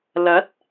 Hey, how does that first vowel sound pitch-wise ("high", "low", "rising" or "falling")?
rising